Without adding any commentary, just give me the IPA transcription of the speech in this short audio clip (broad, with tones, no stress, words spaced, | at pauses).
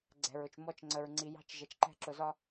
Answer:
ɡ͡ǀɛ̤˨ɹʊ˨t͡ʃ mɔ˦˨t͡ʃŋ͡ǀə˨ɹŋ͡ǀi˨jɑ̤˦t͡ʃ ʒɜ˨t͡ʃǃɛ̤˦ ǁʊ˨zɒ˦